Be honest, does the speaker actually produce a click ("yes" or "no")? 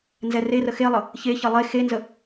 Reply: no